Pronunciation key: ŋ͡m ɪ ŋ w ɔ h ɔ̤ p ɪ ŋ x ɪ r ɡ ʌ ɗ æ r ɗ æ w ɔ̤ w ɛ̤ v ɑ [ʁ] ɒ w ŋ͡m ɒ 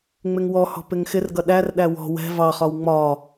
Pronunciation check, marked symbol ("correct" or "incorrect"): incorrect